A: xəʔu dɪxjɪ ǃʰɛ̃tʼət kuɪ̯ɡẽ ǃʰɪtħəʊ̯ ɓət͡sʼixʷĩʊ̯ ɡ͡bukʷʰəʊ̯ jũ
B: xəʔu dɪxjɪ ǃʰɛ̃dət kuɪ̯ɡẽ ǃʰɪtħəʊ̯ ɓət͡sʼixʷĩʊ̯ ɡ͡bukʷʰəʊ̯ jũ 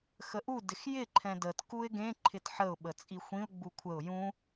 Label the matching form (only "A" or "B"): B